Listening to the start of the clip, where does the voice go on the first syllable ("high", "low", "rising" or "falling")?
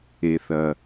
low